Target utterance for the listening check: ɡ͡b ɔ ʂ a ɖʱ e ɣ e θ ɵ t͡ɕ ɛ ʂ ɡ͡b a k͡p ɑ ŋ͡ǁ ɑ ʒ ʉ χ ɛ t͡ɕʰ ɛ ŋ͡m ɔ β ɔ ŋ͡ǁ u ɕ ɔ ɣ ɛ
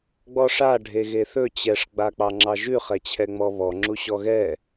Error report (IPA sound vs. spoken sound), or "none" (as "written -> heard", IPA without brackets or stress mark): none